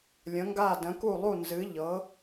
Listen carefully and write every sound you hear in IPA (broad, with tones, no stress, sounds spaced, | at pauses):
lʲ ə̃˨˦ ŋ ɡ a˦˨ d ə̃˨˦ k u˦˨ lˠ u˦˨ n z ɨ˨˦ ʎ ɤ˨˦